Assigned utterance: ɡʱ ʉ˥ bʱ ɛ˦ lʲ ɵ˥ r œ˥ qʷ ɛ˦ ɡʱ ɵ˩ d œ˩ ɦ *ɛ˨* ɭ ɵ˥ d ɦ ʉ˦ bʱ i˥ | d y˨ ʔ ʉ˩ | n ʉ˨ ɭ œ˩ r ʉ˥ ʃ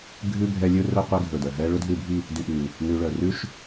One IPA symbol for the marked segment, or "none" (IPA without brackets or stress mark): ɛ˦